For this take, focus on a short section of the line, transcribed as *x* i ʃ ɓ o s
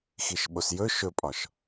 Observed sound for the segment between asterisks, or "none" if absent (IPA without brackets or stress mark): x